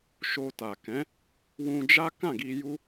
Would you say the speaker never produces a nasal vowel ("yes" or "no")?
no